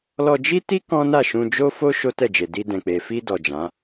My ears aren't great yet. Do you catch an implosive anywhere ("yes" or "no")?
no